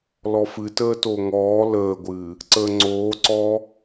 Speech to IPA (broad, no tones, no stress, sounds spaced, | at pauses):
l ɔ f ɨ t əː t o ŋ ɔː l əː ɡʷ ɨː | ǀ əː ŋ͡ǀ oː ǀ ɔː